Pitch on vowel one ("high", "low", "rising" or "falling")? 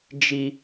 high